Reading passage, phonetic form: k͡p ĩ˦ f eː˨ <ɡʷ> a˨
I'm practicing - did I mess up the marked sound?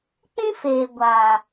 no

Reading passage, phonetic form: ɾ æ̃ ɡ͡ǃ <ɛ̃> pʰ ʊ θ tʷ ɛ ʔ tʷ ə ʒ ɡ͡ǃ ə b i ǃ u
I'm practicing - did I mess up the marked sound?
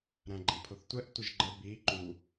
no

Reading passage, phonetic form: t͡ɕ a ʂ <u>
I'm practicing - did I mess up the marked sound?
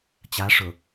yes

